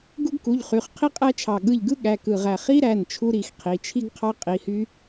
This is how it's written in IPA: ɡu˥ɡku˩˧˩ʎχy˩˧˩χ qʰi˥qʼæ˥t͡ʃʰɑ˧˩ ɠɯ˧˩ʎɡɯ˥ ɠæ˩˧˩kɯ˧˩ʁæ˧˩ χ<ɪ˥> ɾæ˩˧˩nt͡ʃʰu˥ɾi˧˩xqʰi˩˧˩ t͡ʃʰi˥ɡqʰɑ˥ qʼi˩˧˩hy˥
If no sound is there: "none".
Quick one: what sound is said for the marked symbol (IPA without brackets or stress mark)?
i˥